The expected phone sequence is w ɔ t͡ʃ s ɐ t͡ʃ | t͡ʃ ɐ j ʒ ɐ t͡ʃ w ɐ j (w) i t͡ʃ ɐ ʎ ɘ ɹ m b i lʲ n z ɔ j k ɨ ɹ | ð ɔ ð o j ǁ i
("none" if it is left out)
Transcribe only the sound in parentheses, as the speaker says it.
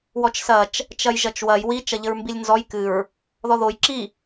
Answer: w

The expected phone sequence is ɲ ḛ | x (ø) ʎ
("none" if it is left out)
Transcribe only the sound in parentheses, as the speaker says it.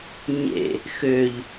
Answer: ø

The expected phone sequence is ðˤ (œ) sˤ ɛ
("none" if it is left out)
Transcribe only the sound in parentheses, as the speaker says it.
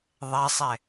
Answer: ɛ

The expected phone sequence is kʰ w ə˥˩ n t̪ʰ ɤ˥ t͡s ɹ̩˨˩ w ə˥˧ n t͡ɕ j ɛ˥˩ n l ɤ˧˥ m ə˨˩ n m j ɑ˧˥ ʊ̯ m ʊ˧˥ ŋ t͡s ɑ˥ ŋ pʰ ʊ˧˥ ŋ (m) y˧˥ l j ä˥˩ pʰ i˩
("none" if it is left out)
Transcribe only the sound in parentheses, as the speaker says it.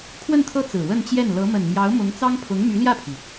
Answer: m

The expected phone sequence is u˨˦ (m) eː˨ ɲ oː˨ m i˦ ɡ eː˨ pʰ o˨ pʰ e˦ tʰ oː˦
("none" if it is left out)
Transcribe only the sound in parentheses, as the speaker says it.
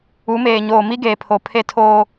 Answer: m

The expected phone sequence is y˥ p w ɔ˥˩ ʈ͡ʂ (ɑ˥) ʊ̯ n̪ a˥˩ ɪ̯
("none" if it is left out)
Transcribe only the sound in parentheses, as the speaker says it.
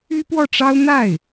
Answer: ɑ˥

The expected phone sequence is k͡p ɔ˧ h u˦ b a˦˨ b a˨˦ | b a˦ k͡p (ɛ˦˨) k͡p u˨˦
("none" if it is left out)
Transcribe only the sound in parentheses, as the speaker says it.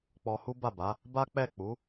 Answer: ɛ˦˨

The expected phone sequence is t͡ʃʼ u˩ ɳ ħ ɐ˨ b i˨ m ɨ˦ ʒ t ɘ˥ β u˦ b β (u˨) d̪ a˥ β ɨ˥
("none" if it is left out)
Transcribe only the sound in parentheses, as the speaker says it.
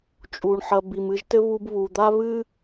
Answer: u˨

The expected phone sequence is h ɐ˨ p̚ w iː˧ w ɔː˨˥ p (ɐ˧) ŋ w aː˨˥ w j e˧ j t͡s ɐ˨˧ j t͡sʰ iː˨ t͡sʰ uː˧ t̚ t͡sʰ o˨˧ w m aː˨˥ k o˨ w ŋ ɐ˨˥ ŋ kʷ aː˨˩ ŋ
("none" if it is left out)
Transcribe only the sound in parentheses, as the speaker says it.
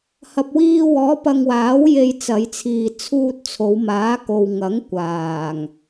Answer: ɐ˧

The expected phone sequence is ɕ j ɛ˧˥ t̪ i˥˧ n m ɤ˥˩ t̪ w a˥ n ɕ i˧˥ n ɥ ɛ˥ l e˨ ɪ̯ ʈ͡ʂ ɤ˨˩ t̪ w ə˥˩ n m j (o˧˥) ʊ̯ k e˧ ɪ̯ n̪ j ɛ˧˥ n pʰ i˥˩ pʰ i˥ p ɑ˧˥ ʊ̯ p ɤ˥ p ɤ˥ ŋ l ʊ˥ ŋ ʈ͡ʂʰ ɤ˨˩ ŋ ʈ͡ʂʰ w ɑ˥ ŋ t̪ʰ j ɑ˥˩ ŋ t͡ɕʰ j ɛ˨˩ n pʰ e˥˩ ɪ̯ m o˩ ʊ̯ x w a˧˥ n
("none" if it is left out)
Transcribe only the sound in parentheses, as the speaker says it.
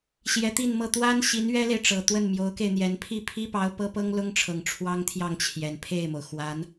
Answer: o˧˥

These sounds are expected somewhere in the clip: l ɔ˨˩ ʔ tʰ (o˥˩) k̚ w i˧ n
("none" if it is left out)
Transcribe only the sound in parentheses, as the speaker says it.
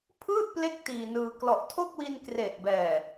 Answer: o˥˩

